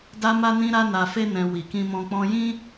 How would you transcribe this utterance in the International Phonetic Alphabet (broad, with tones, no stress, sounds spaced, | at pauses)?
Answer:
d a˦ m a˦ n ĩ˦ ɾ a˦ n a˧ f e˦ n ɛ̃˧ w i˨ k ĩ˧ m ɔ̃˧ k͡p ɔ̃˦ j ĩ˦